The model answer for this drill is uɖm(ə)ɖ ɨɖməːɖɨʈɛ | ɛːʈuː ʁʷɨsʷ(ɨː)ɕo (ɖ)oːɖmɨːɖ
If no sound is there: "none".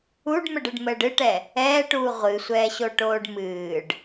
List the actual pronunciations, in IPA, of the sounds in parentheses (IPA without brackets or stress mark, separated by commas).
ə, ɛː, ʈ